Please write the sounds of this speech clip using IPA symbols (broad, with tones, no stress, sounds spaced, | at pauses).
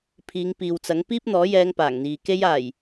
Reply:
pʰ iː˨˧ ŋ p iː˨ w t͡s ɐ˨˥ ŋ p iː˥ p̚ n̪ ɔː˨˥ j ɛː˧ ŋ p aː˨˩ ŋ n̪ iː˨ k e˥ j aː˨˩ j